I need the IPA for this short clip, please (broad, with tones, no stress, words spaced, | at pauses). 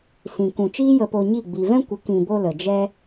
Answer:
sĩ˨ kũ˨t͡ʃiː˦ jə˧po˧ɲi˦˨ ɡ͡bi˨vɛ̃˦kʷə˨˦ kĩ˨bo˧ lə˨d͡ʒɛ˦